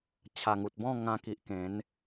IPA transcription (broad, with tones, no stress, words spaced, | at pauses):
t͡ɕʰa˨˩ŋu˨t̚bɔ̃˥˧ ŋã˧ki˨ʔ kẽ˨˦n